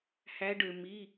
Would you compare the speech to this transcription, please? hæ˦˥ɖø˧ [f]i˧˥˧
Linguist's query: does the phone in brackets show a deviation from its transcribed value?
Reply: yes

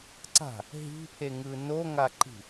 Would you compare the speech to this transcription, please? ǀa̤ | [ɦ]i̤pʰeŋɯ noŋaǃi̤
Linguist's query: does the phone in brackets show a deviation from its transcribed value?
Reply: no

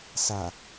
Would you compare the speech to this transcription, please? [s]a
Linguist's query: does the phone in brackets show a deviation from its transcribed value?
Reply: no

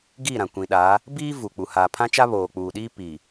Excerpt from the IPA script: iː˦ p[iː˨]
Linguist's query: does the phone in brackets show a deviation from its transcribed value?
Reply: no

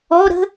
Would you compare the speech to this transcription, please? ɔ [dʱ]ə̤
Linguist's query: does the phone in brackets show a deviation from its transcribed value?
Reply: yes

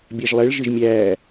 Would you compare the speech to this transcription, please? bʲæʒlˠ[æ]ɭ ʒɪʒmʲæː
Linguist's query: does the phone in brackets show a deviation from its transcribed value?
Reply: yes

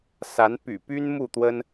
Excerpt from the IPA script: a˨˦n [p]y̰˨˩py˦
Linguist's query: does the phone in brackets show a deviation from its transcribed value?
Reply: no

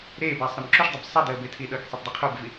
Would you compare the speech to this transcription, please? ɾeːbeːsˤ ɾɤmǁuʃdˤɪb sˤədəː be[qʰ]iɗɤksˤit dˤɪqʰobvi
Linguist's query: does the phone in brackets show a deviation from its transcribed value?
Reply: yes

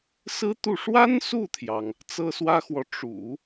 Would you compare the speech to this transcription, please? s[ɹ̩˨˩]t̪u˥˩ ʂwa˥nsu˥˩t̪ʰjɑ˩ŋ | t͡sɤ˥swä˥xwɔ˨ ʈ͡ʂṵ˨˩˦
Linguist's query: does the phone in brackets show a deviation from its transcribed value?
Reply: yes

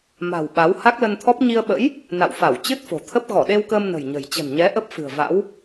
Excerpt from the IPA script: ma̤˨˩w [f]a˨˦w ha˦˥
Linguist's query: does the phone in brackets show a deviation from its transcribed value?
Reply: yes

